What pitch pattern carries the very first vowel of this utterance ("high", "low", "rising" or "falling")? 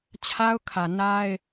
high